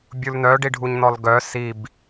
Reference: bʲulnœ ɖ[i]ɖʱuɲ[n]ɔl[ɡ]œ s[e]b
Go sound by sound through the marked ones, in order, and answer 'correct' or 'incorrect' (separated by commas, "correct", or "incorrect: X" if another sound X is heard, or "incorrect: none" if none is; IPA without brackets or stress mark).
correct, correct, correct, incorrect: i